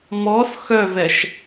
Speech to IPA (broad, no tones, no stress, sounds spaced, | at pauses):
m ɔ s x œ v ɛ ʃ